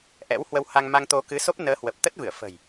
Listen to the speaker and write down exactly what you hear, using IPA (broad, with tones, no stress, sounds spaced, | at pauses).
ʔ ɛ̰˧˥ w h w ə˧ w h a˧ ŋ m a˧ ŋ t̪ o˧ k ɨ˨˦ s o˦˥ p̚ n əː˨˦ h w ə˨˩ p̚ t̪ ə˦˥ t̚ v ɨ˧˩ ə̯ f ə̤˨˩ j